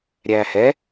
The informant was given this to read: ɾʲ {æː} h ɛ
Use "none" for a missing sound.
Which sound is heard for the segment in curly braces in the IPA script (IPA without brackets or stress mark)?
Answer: æː